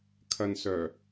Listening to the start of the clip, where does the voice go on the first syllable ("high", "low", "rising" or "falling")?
low